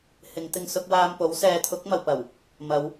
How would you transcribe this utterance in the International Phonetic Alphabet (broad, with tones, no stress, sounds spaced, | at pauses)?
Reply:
h ɪ˨˧ ŋ t̪ ɪ˧ ŋ s ʊ˧ k̚ w aː˧ m p o˨˥ w s ɛː˨˧ t̪ʰ ʊ˨˥ k̚ m ɐ˨ w p ɐ˨˩ w | m ɐ˨˧ w